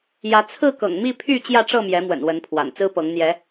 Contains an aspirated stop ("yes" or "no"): yes